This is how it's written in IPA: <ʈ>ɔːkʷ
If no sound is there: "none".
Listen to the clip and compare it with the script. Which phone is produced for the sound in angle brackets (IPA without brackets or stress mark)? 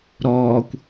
ɾ